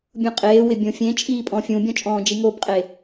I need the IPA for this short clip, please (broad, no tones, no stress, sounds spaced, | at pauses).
bʲ ũ qʼ eː w ɪ bʲ õ fʲ ẽ t͡ʃʼ iː pʼ ɔ̃ fʲ ũ bʲ ɔ̃ t͡ʃʼ ɔ̃ː d͡ʒ i ŋ o b qʼ e